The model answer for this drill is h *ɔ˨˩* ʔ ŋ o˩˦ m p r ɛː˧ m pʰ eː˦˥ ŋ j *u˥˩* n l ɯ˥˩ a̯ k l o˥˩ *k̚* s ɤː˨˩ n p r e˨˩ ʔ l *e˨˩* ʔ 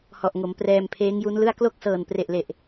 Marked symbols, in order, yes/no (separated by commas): yes, no, yes, yes